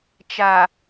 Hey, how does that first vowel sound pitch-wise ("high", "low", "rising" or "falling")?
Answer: low